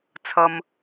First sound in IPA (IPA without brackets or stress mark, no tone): t͡sʰ